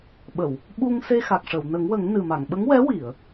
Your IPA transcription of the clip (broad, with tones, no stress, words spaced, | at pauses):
ɓə˨˩˨w | ɓu˧ŋse˧ xa˨˩k̚ʂə˨˩˨wnə˨˩˦ŋwə˨˩˦ŋ nɨ˨˩ma˨˩˨ŋ ɓə˧˥ŋwɛ˧˥wi˨˩˨ə̯